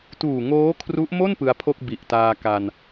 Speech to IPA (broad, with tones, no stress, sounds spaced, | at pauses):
t uː˨˩ ŋ oː˦˥ kʰ r u˦˥ ʔ m o˥˩ n p ɯ˧ a̯ pʰ o˥˩ k̚ b i˨˩ ʔ t aː˧ k a˧ n